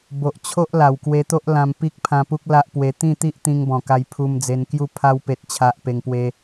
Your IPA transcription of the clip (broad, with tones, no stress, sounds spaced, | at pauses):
b o˨ ʔ t͡ɕʰ o˦ ʔ l a˨˩ w k w e˧ t̪ o˦ ʔ l ã˧ m p i˦ k̚ pʰ ã˧ p u˦ k̚ l a˦ ʔ p w e˧ t̪ ĩ˥˧ t̪ i˦ ʔ t̪ ĩ˧ ŋ b ɔ̃˨˩ k a˧ j pʰ u˧ m d͡z e˧ n k j u˥˧ pʰ a˦ w p e˦ t̚ t͡ɕʰ a˦ ʔ p e˧ ŋ p w e˦